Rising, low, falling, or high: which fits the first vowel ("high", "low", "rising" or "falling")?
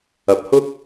low